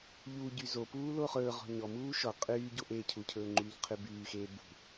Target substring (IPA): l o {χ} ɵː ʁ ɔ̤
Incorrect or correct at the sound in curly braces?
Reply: correct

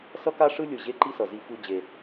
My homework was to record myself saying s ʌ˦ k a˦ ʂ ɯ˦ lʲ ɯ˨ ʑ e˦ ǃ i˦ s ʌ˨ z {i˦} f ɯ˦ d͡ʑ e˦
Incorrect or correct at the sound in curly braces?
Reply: correct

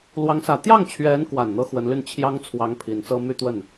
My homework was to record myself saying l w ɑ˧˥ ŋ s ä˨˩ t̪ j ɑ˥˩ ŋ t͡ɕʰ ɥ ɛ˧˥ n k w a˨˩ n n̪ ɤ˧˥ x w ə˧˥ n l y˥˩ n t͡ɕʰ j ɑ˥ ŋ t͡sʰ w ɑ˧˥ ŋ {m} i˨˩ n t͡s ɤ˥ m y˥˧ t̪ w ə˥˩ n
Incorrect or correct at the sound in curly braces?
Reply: incorrect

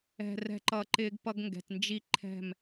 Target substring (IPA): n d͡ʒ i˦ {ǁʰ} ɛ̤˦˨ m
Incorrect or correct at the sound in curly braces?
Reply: incorrect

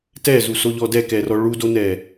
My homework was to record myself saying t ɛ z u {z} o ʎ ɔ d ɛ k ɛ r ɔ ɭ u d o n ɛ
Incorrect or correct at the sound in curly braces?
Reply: incorrect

